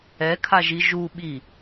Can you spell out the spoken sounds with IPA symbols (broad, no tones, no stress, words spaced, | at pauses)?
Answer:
ɛkʰaʒi ʒuɓi